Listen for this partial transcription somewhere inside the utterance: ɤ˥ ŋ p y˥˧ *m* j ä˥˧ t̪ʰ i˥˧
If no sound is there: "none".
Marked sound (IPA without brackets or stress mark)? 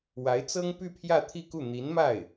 pʰ